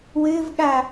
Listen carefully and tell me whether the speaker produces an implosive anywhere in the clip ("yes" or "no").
yes